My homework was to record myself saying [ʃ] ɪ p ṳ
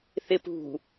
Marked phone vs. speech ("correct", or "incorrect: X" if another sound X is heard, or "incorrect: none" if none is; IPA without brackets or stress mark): incorrect: θ